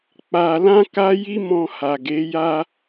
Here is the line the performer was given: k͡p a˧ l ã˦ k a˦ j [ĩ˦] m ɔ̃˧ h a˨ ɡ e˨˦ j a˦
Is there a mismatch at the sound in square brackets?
yes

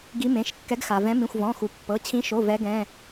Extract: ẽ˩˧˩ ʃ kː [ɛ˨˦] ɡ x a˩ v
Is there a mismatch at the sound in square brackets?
no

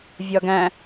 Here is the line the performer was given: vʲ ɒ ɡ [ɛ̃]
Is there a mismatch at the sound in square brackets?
yes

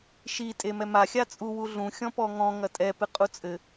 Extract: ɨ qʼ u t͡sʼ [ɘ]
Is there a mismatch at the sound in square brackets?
no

